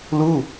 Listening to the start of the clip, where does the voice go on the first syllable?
falling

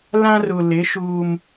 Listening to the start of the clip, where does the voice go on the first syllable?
high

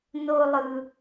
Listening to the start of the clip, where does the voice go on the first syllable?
high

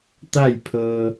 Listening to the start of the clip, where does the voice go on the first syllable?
falling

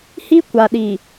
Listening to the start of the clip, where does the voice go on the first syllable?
high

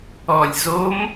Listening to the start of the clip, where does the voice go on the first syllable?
low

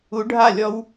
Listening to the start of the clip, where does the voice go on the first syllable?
rising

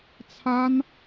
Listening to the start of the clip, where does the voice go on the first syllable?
high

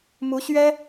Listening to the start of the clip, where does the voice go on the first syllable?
rising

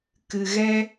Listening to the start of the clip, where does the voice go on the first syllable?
low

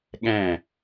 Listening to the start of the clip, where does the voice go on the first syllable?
falling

